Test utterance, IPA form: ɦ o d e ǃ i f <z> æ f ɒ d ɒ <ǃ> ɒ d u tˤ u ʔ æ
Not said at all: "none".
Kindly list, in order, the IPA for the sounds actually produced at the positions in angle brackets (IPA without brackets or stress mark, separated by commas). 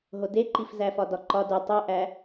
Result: z, ǃ